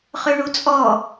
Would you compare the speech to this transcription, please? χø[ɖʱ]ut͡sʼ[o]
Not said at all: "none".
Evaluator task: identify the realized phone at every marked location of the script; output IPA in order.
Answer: ɳ, ɔ

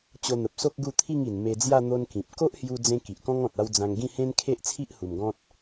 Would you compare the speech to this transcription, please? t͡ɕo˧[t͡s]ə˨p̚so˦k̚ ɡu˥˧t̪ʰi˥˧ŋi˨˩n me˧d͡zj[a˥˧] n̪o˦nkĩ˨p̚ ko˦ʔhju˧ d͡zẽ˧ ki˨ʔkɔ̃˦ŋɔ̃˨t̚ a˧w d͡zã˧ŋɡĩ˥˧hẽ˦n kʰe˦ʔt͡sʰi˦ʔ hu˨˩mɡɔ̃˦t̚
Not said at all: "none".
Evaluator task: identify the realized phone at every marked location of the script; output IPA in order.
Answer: n̪, a˥˧

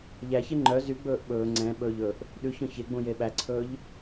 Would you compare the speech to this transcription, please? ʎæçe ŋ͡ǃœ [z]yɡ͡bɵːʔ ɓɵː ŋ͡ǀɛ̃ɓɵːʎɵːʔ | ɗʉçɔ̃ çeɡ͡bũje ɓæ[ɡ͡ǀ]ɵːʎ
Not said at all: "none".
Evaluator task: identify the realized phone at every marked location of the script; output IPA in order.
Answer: z, ǀʰ

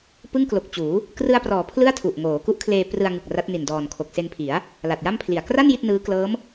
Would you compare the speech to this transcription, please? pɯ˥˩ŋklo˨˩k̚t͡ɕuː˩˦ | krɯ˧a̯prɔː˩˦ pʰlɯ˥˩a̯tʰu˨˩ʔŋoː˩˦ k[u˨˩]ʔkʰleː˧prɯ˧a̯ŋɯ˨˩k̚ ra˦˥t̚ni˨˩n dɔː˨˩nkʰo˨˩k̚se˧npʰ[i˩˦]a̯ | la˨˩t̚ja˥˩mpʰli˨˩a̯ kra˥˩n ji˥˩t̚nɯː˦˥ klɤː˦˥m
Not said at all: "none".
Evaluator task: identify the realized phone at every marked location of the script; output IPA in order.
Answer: u˦˥, i˩˦

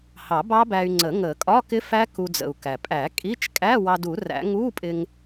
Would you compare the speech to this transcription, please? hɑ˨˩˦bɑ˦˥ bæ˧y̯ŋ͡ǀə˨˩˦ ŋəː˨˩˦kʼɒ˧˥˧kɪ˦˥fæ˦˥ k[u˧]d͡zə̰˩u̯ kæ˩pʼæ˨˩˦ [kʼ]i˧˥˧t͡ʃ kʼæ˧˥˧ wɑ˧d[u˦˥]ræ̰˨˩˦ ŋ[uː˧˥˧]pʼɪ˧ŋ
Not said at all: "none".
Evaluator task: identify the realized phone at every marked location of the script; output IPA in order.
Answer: u˧, kʼ, u˨˩˦, uː˧˥˧

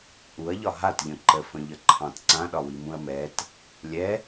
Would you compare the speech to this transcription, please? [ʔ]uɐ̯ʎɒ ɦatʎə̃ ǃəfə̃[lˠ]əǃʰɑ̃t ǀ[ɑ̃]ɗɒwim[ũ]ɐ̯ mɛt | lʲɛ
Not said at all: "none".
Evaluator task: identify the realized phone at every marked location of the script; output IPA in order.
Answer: ʔ, ʎ, ã, ũ

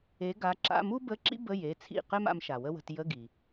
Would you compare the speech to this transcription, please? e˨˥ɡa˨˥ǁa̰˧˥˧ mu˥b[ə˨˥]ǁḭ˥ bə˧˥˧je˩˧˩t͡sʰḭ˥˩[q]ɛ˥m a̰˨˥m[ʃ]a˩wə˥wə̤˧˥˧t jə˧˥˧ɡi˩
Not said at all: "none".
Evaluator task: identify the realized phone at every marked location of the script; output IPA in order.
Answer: ə˧˥˧, q, ʃ

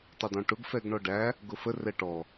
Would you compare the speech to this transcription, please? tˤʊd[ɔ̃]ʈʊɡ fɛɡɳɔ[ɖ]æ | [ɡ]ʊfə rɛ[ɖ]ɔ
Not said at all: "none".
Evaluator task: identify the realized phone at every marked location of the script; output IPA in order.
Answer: ɔ̃, ɖ, ɡ, ʈ

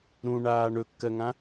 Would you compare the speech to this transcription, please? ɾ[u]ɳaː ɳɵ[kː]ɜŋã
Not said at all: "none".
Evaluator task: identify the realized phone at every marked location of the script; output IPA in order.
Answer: ũ, kː

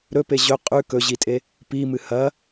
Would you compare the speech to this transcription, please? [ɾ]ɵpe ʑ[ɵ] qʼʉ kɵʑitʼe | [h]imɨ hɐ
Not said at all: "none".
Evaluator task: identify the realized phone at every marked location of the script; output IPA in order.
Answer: ɾ, ɵ, p

